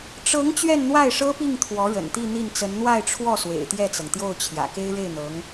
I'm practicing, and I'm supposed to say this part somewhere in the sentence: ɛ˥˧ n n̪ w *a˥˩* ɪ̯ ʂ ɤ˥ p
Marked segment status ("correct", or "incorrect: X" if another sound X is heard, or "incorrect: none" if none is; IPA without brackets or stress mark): correct